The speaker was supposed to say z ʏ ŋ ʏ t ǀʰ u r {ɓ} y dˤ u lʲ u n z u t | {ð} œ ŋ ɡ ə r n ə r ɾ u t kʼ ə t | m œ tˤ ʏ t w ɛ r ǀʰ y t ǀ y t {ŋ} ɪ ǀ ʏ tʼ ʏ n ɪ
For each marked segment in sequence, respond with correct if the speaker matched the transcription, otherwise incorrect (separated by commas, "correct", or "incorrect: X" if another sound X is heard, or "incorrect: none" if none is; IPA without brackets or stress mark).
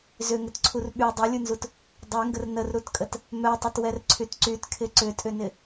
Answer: correct, incorrect: dˤ, incorrect: kʰ